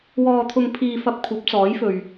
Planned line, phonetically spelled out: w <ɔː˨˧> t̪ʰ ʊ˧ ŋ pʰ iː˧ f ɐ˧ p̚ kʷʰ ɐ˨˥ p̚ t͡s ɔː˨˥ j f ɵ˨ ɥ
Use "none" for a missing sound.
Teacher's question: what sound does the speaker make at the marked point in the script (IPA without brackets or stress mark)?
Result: ɔː˧